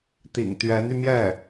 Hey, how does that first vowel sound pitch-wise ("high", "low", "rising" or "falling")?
low